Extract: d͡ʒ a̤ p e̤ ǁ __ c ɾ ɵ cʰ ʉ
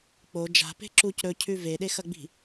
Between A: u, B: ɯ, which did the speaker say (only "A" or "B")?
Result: A